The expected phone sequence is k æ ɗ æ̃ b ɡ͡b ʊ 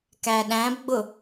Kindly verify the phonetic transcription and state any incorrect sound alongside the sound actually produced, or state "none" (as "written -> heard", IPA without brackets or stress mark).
none